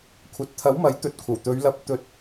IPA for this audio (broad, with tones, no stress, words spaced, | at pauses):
kʷʰɐ˨t̚t̪ʰɐ˨˥wmɐ˨˥j t̪ɵ˨t̚ kʷʰɐ˨˩wt̪ɵ˨˧ɥlɐ˨˥p̚ t̪ɵ˨˥t̚